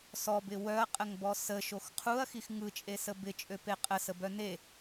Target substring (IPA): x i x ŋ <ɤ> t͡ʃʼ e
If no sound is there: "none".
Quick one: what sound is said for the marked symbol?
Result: ɯ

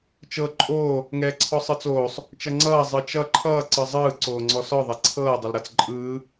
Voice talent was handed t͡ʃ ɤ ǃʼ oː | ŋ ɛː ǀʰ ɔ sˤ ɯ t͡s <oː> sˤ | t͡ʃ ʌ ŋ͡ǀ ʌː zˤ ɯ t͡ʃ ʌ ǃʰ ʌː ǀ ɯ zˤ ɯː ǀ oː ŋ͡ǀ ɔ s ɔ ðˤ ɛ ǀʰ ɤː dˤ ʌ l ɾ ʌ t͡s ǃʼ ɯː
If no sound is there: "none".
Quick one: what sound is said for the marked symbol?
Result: oː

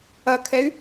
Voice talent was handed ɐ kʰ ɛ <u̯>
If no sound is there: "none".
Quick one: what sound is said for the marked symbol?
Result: y̯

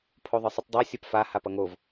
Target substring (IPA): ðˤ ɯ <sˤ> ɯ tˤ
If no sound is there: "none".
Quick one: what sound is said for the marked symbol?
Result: sˤ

